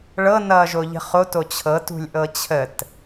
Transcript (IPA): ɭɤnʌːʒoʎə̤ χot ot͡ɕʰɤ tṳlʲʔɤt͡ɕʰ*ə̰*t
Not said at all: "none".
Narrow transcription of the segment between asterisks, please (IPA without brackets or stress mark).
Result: ə